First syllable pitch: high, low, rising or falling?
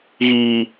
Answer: high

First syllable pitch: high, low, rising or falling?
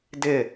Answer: falling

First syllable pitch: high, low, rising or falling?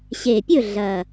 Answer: low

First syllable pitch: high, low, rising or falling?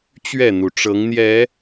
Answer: falling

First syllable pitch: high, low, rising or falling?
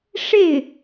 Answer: falling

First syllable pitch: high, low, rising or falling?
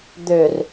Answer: low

